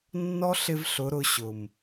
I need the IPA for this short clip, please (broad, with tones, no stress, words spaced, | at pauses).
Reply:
nːɔ˦ ɬɪ˧v ɬʊ˨˦ɾʊ˧ɕʊ˨m